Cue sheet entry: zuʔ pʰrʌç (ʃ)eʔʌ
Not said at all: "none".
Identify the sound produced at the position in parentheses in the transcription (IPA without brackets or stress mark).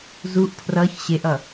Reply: ɕ